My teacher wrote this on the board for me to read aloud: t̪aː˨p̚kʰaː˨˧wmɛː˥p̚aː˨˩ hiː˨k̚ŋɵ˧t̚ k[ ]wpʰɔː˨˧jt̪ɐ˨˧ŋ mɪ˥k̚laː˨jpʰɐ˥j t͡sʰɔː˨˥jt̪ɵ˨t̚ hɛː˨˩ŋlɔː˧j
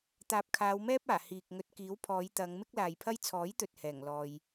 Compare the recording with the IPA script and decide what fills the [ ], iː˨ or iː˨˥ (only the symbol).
iː˨˥